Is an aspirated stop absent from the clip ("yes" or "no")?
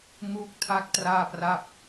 no